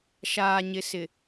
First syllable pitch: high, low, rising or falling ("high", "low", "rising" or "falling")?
low